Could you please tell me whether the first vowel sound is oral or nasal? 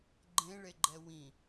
nasal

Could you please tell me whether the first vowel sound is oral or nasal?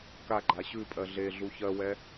oral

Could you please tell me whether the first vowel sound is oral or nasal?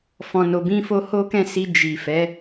nasal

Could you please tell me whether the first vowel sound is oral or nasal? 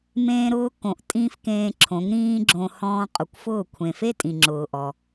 nasal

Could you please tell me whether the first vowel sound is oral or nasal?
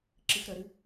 oral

